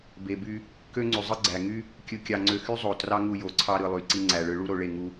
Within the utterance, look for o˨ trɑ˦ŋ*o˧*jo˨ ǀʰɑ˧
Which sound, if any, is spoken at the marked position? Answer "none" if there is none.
u˧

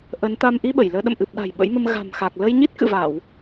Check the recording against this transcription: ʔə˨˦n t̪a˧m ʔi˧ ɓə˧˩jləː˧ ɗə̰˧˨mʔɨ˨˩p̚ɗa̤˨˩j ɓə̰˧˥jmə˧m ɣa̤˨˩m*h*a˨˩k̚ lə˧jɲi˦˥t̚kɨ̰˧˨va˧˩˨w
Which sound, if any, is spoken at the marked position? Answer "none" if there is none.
x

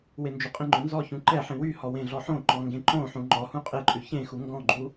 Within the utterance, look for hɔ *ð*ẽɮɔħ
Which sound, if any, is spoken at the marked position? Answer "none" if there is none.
w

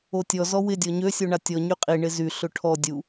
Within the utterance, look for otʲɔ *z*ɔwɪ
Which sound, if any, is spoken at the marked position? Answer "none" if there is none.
z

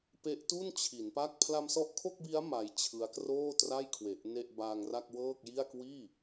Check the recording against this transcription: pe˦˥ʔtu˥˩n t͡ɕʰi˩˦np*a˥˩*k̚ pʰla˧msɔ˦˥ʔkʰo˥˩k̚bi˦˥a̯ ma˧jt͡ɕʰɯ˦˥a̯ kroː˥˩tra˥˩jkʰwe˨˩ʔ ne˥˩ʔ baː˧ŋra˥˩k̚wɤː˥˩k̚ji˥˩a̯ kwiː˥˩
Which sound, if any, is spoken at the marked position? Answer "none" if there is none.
a˥˩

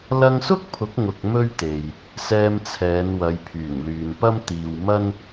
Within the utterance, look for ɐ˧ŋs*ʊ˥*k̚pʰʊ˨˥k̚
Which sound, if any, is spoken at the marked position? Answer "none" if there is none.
ʊ˥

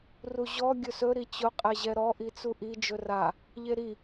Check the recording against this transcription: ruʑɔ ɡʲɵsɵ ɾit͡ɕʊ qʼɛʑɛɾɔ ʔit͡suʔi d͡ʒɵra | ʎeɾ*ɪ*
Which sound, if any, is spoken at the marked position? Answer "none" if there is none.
i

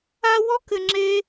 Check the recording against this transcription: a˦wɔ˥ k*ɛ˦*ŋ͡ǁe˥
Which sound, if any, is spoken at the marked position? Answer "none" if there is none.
ɘ˦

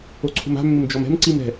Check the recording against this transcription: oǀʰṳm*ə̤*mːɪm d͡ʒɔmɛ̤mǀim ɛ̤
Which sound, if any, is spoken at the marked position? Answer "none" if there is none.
a̤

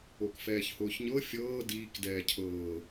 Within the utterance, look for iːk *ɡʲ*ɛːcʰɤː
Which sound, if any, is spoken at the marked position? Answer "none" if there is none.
d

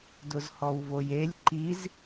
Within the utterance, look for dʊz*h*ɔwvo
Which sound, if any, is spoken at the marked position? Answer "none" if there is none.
h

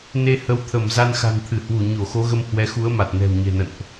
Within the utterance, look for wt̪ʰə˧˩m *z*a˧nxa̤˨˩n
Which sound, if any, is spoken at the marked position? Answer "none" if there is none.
z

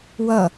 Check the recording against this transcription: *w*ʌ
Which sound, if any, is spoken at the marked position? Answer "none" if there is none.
w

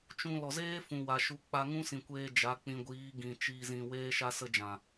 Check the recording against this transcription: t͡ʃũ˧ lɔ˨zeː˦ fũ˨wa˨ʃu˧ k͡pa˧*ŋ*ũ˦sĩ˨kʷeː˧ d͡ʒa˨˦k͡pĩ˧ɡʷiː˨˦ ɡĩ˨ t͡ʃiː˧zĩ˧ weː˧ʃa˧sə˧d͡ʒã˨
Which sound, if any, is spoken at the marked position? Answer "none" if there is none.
ŋ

